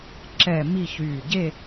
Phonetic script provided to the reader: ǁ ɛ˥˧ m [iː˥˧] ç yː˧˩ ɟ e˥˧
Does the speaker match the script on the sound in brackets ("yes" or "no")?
no